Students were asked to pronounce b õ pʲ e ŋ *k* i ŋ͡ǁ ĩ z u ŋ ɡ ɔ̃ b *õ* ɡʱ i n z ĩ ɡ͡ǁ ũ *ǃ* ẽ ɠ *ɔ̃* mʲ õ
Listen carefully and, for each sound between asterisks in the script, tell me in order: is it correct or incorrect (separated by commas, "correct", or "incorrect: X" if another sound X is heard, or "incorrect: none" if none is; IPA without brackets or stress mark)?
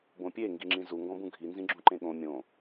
incorrect: ɡ, incorrect: ũ, correct, incorrect: õ